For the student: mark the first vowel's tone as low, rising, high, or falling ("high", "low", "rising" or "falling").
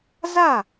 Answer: falling